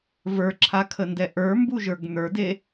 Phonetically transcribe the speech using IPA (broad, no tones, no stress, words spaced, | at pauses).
və˞ǁʰakʰəndɛ ʔə˞mbuʒə˞ɡ n̪ə˞de